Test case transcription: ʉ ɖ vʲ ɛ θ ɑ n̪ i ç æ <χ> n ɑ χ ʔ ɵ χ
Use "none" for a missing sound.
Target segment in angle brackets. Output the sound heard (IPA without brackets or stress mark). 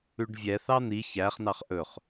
χ